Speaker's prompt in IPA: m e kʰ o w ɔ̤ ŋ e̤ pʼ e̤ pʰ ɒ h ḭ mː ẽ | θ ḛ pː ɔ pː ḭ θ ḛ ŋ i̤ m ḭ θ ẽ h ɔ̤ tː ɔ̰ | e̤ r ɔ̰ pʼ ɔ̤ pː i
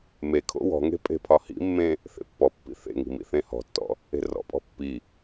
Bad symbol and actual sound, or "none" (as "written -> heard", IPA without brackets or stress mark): o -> o̰